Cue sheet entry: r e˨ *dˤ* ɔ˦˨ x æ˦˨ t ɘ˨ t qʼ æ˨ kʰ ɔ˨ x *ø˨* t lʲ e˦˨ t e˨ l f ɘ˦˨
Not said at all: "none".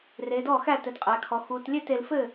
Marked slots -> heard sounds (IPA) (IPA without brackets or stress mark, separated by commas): d, u˨